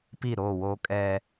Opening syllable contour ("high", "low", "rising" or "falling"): falling